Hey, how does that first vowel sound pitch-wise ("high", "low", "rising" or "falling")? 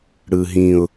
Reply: low